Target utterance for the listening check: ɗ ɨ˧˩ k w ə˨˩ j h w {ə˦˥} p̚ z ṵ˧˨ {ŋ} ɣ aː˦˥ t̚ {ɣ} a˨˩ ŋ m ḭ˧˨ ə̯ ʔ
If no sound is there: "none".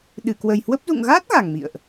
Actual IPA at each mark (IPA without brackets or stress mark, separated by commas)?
ə˦˥, ŋ, ɣ